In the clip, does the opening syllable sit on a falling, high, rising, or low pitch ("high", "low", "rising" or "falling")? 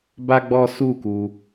high